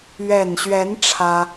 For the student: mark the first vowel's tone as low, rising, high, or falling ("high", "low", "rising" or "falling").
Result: low